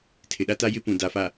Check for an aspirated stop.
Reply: present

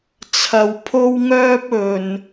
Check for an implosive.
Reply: absent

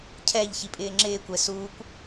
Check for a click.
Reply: present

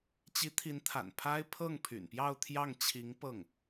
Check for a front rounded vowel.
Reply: present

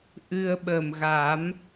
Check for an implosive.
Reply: present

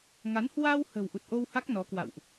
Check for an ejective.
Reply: absent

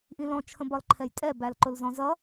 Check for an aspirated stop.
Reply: present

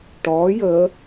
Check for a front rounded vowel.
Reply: absent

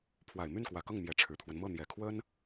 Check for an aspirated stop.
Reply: present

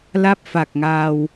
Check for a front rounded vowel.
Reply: absent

